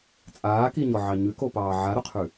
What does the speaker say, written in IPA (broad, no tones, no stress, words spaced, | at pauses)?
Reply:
t͡sʼaːkiɲɔʕɑ ɲʉkopɑː ʕaɾʊqʰʉ